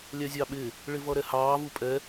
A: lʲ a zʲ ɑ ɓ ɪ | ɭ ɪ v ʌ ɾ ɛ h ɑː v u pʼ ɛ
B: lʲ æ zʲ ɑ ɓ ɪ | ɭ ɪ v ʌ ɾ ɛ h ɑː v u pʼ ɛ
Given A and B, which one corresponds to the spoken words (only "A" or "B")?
B